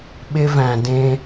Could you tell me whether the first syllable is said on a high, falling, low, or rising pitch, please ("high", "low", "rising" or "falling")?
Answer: high